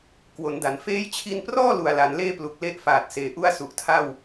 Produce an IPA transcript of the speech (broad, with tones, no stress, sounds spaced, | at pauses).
k w o˩˦ n d a˩˦ n f eː˦˥ j t͡ɕʰ i˧ n p r ɔː˥˩ l u˨˩ a̯ l a˩˦ n l eː˥˩ p l u˨˩ k̚ l e˥˩ ʔ f aː˨˩ t̚ s eː˨˩ ʔ u˥˩ a̯ s u˨˩ ʔ tʰ a˥˩ w